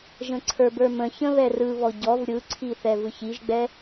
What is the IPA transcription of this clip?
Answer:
ʒə̃ǀʰə˞bə˞mə̃ çə̃βɛrɯβɔ ɟɔv ɾʲɯǀʰiθɛ vɯçiʒɡ͡bɛ

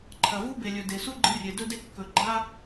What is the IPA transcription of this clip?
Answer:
ǃʰɐ˨vu˦be˨lʲɵ˨ de˨su˦ɡ͡ǃɨ˧rʲe˨ dɵ˧de˧ kːɵ˨ ɡ͡ǃa˧

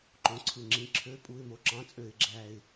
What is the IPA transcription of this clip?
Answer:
ǃõ˧˥˧ǀʰɯ˦˨ŋ͡ǁĩ˧˥˧ ǁʰø˧˥˧ pʼu˧˥˧ɪ̯mo˧˥˧ǁɑ̃˧˥˧ t͡sʼø˦˨ɪ̯ɡ͡ǁæ˦˨ɪ̯

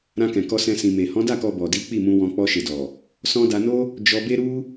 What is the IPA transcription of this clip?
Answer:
ɾã˧kɛ̃˨kɔ˧sɛ̃˧ sĩ˨me˨ hɔ̃˨˦da˦˨kɔ˧ bɔ˨di˨˦ k͡pi˦˨mũ˧wɔ̃˧ k͡pɔ˧ʃe˨dɔ˨ | sɔ̃˧da˧no˦ | d͡ʒɔ˧be˦ɾu˦

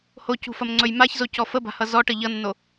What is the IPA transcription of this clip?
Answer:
hocṳfɐmŋ͡ǀɵj maçzocɔ fəba̤hʌ zɔʈə ʎʌnːo

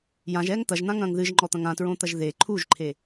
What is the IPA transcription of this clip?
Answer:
jãʒɛːŋ t̪ɐʒn̪ãŋɐ̃ːŋ ðɨʒŋ͡ǃɔt̪ɐ̃ŋ ãtɹõt̪ɐʒ ðe ǃʰuʒǃʰe

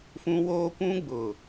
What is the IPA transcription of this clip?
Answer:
fũ˦woː˦kʷũ˦ɡ͡bʊ˨

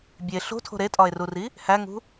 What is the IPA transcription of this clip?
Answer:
bʲe ɬo̤tʰo̤ ɾetʼɒe̯ruri | hæŋṳ

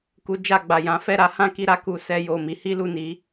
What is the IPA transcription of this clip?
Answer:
ku˧d͡ʒa˧ɡ͡ba˨ jã˨˦ fɛ˦˨ɾa˨˦hã˦ ki˦ɾa˦ku˧sɛ˧ jo˨ mi˨˦hi˦lu˦˨ni˨˦

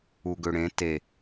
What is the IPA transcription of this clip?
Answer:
uɡøɽẽ te

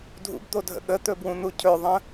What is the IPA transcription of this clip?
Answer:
dʱṵbd̪odʱə̰ ɠət̪ɵbwũn̪u cʰɵðˤə̃

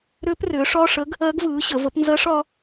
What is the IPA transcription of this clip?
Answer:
ɾʏː˧˥prʏː˩˥ʂɒ˧˥˧ʂə˧˥ɡ | ɜ˧˥ɡvɯː˩˥ ɕə˩˥ və˩˥pnzɜ˧˥ʂ ɒ˧˥

